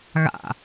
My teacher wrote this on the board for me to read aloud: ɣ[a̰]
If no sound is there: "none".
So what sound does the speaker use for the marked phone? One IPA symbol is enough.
a̰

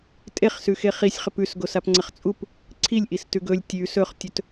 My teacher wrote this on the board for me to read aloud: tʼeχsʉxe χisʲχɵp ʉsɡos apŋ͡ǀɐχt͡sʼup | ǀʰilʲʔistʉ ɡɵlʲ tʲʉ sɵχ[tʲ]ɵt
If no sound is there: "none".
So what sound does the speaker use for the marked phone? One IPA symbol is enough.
tʲ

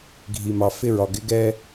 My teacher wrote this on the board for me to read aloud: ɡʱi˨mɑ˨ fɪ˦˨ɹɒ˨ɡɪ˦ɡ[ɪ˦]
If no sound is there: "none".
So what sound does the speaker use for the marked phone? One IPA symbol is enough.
ɛ˦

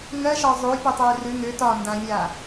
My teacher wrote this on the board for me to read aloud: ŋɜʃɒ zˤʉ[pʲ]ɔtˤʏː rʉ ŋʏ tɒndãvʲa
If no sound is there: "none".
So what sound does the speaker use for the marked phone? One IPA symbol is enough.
pʲ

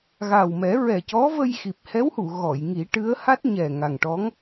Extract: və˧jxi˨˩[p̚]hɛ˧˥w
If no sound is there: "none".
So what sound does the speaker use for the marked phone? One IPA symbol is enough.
p̚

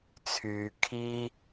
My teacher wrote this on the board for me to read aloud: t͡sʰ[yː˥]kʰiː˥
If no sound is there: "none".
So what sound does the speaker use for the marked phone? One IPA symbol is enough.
yː˨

